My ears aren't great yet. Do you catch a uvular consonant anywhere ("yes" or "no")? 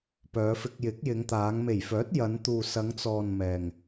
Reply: no